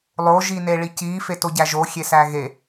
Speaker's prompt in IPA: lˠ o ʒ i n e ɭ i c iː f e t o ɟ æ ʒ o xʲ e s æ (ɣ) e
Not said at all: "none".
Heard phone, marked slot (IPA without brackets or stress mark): ɣ